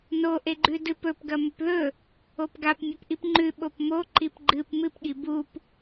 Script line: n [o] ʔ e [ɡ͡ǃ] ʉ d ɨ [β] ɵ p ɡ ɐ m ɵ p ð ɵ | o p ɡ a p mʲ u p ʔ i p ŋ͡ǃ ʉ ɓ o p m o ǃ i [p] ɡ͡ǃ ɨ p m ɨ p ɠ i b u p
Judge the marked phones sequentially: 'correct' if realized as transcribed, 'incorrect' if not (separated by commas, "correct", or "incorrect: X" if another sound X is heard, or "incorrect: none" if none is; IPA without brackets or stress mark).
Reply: correct, correct, incorrect: p, correct